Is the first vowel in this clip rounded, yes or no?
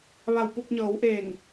no